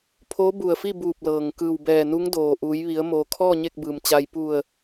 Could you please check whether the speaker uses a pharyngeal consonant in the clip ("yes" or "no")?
no